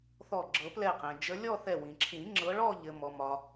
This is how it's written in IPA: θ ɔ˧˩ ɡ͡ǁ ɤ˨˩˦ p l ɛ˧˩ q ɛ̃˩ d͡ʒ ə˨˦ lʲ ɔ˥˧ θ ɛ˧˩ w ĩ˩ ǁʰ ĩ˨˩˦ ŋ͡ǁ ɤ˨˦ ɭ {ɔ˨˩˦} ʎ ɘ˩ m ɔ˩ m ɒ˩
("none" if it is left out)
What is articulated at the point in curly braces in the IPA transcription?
ɔ˥˧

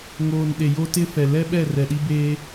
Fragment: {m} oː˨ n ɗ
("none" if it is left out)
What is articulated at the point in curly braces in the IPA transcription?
ŋ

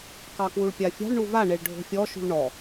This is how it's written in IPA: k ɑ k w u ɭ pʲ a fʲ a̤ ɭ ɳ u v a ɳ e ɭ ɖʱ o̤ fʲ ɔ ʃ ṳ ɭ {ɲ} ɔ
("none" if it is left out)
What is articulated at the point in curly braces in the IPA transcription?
ɳ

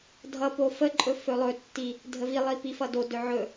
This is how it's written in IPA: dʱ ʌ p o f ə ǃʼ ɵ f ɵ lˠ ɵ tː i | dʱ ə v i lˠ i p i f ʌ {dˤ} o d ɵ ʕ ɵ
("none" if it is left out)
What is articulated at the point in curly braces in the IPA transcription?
d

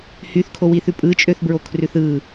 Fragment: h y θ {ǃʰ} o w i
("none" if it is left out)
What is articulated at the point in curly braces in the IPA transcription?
kʰ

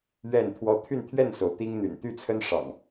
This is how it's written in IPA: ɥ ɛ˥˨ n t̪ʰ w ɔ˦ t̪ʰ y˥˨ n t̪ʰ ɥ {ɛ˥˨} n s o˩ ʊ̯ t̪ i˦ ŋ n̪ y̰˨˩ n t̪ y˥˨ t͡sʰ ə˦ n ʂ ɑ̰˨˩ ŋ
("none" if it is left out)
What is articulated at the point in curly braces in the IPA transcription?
ɛ˥˨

